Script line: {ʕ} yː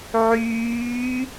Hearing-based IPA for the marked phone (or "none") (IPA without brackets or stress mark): ʕ